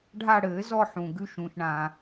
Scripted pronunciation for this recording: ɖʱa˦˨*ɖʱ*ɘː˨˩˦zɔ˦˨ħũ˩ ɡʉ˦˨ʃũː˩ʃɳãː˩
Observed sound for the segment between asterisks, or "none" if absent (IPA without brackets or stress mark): ɽ